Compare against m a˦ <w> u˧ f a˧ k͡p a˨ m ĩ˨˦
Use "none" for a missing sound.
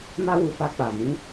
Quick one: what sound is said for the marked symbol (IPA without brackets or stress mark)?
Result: w